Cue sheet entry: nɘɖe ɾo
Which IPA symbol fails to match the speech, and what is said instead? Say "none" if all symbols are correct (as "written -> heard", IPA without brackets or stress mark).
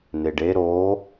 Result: ɘ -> e